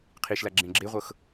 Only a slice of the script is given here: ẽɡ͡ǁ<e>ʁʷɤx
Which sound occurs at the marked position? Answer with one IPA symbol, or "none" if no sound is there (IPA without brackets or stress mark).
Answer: e